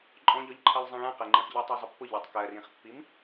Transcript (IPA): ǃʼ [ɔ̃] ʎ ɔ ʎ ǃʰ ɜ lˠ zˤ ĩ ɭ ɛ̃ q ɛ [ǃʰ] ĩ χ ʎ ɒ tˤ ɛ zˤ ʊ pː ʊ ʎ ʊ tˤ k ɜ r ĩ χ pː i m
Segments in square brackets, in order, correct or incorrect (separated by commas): correct, incorrect